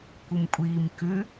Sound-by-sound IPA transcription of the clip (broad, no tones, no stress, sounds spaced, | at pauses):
kʷ ɯ m kʷʼ iː m k ʉ